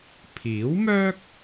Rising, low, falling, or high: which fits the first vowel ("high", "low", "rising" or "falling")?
rising